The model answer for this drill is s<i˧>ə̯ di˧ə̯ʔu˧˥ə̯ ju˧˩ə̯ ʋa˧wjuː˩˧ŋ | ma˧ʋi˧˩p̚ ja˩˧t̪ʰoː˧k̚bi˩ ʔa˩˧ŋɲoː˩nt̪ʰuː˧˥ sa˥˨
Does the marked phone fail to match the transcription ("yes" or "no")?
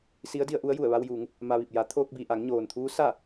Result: yes